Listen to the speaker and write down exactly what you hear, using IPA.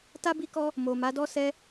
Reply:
t a˦ b i˦ k ɔ˦ | m o˨ m a˨˦ d ɔ˦ s ɛ˦

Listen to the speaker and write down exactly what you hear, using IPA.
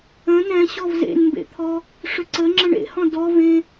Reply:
ə̃ n ɛ̃ ɕ ɔ v z ḛ n m b ḛ t̪ʰ ɔ | ʂ ʏ ǀ ə ŋ͡ǁ ə̃ ɳ ḛ h ɔ̃ d ɔ v ẽ

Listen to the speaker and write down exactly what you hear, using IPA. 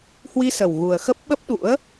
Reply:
h w i˧ s ə˨˩ w ɣ u˨˩ ə̯ x ə˦˥ p̚ ɓ ə˦˥ p̚ ɗ ṵ˧˥ ə̯

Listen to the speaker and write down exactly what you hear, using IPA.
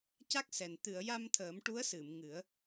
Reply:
c a˦˥ k̚ s ɛ˨˩ n t̪ ɨ˨˩˨ ə̯ j a˧ m t̪ʰ əː˨˩˦ m ʈ u˧˥ ə̯ s ɨ˨˩˨ m ŋ ɨ˨˩˦ ə̯

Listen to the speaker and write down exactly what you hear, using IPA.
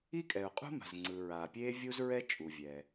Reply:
i˥ kʼ ɛ˩ ʊ̯ qʼ ṳ˥ m a̤˩ z ŋ͡ǀ ɯ˩ ɹ aː˩ pʲ eː˥ vʲ u˥ z ɹ ɛ˥ t͡ʃʼ u˩ vʲ ɛ˩

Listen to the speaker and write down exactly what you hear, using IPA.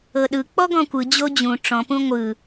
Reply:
ɤ ɗ ɯ k͡p ɔ ɡ ɔ̃ kʷ ɯ d͡ʑ o d͡ʑ ũ ʈ͡ʂ ɔ̃ p ũ ŋʷ ɯ

